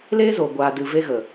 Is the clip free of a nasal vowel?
yes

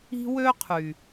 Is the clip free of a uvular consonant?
no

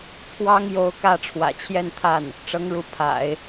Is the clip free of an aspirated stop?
no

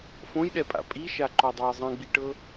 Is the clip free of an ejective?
no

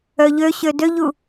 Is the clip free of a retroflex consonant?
yes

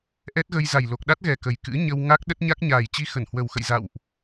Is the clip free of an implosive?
no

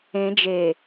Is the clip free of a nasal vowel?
no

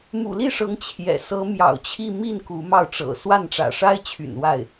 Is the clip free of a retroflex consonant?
no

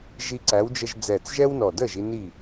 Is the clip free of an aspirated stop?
yes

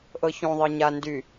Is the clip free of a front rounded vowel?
no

